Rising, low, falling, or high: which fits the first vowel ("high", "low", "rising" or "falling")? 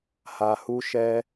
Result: low